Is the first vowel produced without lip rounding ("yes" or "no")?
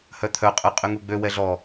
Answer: no